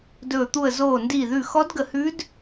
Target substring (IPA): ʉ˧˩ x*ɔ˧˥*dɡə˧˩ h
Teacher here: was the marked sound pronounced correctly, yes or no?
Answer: yes